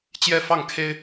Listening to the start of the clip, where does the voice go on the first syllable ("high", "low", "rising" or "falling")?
falling